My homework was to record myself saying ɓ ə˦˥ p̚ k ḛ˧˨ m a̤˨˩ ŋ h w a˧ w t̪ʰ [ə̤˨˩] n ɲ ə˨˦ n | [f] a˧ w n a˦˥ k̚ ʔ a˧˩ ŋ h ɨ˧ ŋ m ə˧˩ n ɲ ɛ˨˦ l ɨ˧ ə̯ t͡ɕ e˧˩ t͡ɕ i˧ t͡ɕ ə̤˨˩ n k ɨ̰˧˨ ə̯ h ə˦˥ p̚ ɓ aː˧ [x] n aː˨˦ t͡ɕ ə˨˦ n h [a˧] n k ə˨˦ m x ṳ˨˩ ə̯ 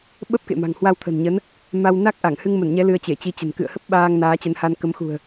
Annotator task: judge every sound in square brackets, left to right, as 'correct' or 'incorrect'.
correct, incorrect, incorrect, correct

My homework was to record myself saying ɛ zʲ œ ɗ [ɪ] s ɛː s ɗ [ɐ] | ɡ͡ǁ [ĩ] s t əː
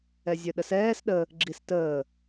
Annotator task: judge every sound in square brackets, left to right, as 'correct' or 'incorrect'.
incorrect, incorrect, incorrect

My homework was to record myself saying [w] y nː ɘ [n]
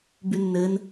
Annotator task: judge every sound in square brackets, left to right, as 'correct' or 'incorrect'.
incorrect, correct

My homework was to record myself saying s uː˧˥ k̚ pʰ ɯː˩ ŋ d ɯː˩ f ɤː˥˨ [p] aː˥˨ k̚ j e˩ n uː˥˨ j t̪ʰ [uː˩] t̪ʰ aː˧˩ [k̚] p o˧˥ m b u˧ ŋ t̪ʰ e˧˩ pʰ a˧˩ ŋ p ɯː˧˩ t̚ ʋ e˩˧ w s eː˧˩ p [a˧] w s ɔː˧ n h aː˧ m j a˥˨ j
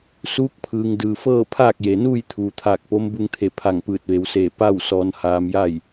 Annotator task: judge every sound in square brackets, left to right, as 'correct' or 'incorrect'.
incorrect, correct, correct, incorrect

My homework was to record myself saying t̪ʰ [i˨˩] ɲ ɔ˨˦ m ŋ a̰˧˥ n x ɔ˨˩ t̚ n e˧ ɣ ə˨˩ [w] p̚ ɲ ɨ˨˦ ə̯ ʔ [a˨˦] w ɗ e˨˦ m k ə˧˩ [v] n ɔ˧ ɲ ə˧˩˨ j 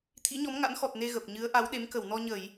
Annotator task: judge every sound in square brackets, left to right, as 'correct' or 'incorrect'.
incorrect, incorrect, correct, incorrect

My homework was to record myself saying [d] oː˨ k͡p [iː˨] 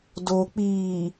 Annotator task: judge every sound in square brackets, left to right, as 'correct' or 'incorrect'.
correct, correct

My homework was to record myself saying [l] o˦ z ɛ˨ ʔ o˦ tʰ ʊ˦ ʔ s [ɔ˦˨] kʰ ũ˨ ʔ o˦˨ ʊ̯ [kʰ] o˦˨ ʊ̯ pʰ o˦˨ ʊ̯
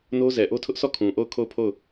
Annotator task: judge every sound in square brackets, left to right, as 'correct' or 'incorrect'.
incorrect, correct, correct

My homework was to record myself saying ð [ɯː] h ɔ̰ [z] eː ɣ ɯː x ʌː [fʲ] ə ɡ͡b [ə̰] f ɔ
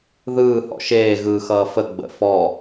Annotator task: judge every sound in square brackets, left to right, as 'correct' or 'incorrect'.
correct, incorrect, incorrect, correct

